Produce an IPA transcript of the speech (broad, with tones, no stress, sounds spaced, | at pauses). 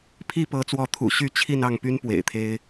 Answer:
pʰ i˥˨ p ɤ˨˦ t͡s w ɔ˨˦ t̪ʰ ṵ˨˩ ɕ y˥˨ t͡ɕʰ i˥˨ n ɑ˥˨ ŋ p y˦ n p w ḛ˨˩ ɪ̯ t̪ʰ e˦ ɪ̯